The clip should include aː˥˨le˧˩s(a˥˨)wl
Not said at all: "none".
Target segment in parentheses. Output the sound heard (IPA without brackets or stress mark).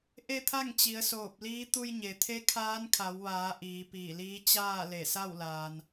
a˥˨